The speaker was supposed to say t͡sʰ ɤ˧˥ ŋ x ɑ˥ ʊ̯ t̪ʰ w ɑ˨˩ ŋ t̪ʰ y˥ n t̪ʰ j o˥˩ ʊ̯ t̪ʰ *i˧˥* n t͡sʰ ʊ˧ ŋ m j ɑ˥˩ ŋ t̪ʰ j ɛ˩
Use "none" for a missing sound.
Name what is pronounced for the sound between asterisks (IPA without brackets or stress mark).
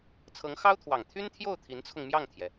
i˧˥